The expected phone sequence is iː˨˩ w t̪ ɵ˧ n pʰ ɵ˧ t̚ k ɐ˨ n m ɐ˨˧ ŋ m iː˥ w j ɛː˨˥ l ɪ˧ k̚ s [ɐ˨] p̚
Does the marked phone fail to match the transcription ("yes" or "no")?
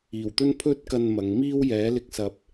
no